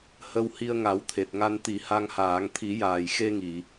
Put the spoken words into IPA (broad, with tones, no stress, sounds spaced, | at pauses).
h ə˧ w h i˧ ə̯ ŋ a˨˩˦ w t̪ʰ e˨˩ t̚ ŋ a˧ n t̪ i˨˩˦ h a˧ ŋ h aː˨˩˦ ŋ t̪ʰ i˨˩˦ j aː˨˩ j x e˧ ŋ i˨˩˨